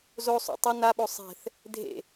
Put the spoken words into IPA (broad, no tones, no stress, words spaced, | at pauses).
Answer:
zosˤṵ tˤʌ naɓo sˤɛ̤θ | dʱḛ